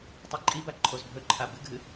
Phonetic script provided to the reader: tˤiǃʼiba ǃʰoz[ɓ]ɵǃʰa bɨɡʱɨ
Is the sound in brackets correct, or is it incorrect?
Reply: incorrect